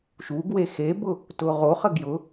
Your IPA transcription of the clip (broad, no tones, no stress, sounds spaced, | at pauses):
ʃ u ɡ w e x e b ʊ | t ʊ ʁ o χ ə ɡ j ʊ